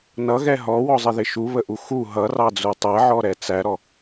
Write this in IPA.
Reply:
n ʌ ɣ ɛ ɦ ɔ w ɔ zˤ ɪ ð ɪ ʃ u β ə ʔ u x u ɦ ʌ r ɑ d͡z u tˤ ɛ ʕ ɔ ɾ ɛ t͡s æ ɾ ɔ

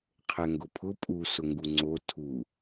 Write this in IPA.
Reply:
qʰ ɛ ŋ ɡ ʊ pʰ ʊ pʼ u s ʊ ŋ ɡ u ŋ͡ǀ o tʰ u

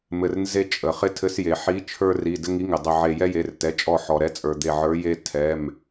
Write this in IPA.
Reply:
m ɘ˧˩ r n z e˦ t͡ʃʼ ə˩ χ ɪ˦ tʰ ɘ˨˥ s j e˩ ħ i˨˥ t͡ʃʰ ə˞˦ r i˩˧˩ d ɘ˦ ŋ i˨˥ ŋ ɪ˩ dˤ ɪ˧˩ ʕ e˧˩ j ɛ˦ j e˩˧˩ r t ɛ˩˧˩ t͡ʃʼ ɔ˧˩ ħ ɔ˩ ɾ ɛ˨˥ t͡sʼ ə˞˩ d̪ e˧˩ ʕ ə˞˨˥ j e˦ tʰ ɛ˩˧˩ m

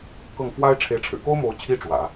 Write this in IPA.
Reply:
k ɤ˥˩ ŋ f w a˥ ɪ̯ ʈ͡ʂʰ e˧˥ ɪ̯ ʈ͡ʂʰ ɻ̩˨˩ k o˥ ʊ̯ m o˧˥ ʊ̯ t͡ɕʰ i˥ ʈ͡ʂ w ä̰˨˩˦

